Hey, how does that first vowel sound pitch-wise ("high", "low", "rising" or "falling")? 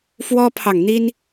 high